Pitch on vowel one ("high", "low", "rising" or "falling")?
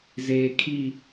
low